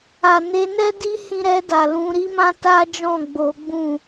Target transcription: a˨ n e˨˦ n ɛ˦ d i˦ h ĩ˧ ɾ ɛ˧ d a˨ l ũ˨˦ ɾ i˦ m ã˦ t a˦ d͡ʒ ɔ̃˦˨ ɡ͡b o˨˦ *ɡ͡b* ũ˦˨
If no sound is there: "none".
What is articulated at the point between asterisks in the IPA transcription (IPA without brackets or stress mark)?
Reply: ɡ͡b